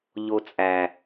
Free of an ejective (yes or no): no